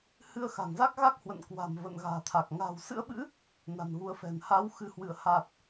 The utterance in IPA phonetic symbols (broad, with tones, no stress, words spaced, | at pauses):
hɨ˧ə̯xa̤˨˩ŋza˦˥k̚ɣa˦˥k̚ hwə̰˧˨nkwa̤˨˩m və̰˧˨nɣa̤ː˨˩t̪ʰa˨˩k̚ ŋa̤ː˨˩wsɨ̰˧˥ə̯ɓɨ̰˧˥ | na̤˨˩nɣu˨˦ə̯fɛ̤˨˩n haː˨˦wxɨ˨˦hwɨ˧˩ə̯ ha˨˩t̚